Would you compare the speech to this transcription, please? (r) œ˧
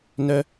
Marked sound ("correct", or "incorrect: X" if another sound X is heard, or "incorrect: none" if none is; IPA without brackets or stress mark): incorrect: n